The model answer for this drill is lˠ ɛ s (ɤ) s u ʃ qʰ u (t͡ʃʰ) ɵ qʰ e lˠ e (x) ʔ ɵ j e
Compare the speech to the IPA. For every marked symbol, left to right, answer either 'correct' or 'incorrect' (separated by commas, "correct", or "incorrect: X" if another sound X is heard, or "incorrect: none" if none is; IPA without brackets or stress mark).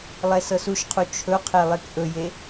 correct, correct, incorrect: k